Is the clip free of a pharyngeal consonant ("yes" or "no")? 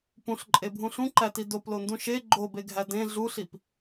yes